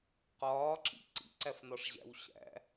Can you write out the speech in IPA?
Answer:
q ɒː ǁ ḭ ǀ ḭ ǀ æ f n ɒ ʂ ʑ æ̰ w ɕ æ̰

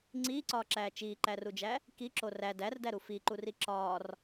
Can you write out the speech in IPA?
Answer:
ŋ͡ǀ iː ǀ ɒː ǁ æː t͡ʃ iː ǃ æ r u d͡ʒ æ | k i ǁ o r æ d æ r d æ ɾ u f i ǃ u r i ǁ ɒː r

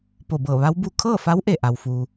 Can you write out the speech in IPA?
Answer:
p o˧˩ b ɤː˧˩ ʋ a˧˥ w b u˧ kʰ ɤː˥˨ f a˧˥ w ʔ e˧˩ ʔ a˩ w f uː˩

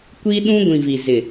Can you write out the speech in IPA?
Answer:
kʷ i˦ ɗ ũ˦ ɡʷ ĩ˨ v i˨ z ɪ˨

